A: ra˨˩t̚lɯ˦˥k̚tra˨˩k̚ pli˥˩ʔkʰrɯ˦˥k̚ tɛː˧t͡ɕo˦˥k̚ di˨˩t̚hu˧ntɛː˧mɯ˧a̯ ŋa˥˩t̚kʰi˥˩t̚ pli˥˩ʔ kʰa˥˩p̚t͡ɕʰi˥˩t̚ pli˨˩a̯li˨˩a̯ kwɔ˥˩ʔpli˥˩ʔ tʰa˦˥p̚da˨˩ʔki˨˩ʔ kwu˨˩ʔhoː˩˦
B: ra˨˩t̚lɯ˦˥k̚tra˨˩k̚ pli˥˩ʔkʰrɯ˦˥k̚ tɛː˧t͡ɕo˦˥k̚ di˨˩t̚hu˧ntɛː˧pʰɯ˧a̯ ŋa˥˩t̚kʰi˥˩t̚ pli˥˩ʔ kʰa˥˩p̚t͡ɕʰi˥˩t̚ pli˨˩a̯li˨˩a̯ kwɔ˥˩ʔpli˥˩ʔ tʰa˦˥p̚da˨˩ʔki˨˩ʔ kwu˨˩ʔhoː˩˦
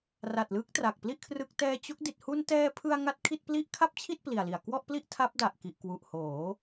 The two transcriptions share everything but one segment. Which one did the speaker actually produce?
B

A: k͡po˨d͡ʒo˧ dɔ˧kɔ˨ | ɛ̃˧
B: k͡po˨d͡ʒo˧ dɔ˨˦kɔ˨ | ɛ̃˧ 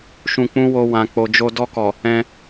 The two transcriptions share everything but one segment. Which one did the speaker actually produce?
A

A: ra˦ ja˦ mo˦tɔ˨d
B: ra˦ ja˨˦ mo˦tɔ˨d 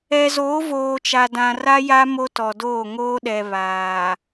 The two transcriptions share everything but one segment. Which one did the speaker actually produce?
A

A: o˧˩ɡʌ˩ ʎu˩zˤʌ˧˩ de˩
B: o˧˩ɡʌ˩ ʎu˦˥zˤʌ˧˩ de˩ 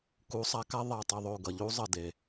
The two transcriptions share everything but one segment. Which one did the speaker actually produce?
B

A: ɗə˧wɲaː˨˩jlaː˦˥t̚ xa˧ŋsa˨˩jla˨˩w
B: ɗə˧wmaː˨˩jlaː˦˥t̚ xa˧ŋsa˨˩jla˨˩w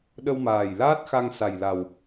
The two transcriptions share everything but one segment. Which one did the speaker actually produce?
B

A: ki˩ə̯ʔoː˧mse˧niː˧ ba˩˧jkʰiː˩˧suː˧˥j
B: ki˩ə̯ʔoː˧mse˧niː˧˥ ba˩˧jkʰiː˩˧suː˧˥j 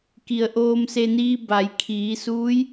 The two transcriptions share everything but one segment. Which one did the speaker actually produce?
A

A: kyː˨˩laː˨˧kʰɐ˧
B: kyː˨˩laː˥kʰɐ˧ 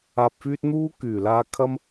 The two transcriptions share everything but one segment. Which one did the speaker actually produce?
A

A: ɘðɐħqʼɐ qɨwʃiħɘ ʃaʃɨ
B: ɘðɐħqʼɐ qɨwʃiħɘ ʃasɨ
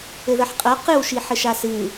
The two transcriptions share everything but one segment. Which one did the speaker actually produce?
B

